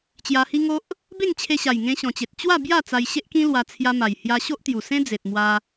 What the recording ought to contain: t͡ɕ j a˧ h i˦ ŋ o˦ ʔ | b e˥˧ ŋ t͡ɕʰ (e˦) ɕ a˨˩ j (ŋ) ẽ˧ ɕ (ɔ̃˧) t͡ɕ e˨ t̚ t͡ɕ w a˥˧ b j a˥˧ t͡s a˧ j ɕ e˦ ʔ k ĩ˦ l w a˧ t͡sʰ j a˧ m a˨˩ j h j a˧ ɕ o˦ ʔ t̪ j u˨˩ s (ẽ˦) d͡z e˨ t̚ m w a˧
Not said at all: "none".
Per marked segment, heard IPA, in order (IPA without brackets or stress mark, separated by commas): e˧, ŋ, ɔ̃˨˩, ẽ˦